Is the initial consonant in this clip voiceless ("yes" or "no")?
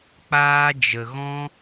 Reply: yes